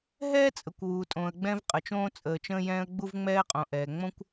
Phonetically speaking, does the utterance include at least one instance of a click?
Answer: no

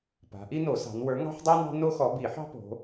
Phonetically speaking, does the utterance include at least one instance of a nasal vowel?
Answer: no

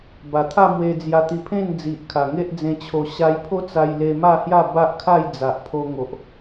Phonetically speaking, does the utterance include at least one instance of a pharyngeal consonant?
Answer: no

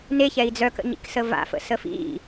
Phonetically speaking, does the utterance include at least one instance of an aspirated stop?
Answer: no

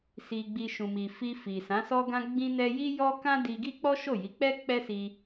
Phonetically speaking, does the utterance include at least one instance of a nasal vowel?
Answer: yes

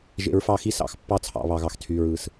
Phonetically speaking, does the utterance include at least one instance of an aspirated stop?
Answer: yes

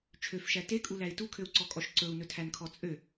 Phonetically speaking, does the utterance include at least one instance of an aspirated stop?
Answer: yes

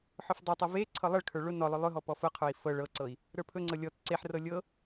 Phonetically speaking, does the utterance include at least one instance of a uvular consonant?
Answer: yes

